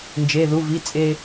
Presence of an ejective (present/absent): present